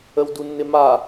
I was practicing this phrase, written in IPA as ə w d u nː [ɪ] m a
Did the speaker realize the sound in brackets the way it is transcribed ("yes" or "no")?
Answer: yes